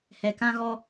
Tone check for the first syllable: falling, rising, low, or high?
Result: low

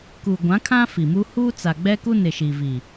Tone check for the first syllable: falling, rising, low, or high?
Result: low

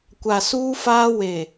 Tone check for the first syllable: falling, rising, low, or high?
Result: low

